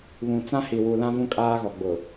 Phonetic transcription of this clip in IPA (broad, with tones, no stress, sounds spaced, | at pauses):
β ũ˨ t͡s ã˦ h i˨ w u˨ l ã˦ v ũ˦ kʼ aː˦ ɣ ɔ˨ ɡ͡b ʊ˨